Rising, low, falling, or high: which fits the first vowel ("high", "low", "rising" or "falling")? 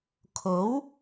rising